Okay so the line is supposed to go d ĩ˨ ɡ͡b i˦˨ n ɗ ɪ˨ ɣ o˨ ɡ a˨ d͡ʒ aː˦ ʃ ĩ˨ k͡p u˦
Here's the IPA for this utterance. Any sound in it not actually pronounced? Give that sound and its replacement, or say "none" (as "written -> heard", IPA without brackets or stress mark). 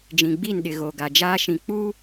d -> d͡ʒ